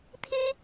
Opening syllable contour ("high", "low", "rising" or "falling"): high